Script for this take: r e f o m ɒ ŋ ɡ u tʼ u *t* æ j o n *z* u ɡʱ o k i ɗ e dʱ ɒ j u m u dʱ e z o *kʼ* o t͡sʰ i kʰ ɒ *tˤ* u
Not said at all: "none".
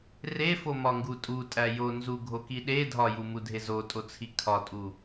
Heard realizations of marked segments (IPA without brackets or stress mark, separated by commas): tʼ, z, tʼ, tʼ